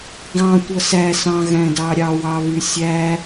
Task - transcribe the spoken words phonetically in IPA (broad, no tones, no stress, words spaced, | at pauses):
ɡɑ̃ tʷʌsæsɑ̃ɣæ̃ dɑɾʲɑwɑβy sʲæ